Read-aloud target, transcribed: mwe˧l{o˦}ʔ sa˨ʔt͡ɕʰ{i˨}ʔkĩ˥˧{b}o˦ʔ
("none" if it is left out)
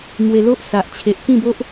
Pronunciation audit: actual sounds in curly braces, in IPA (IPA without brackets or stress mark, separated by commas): o˦, e˨, b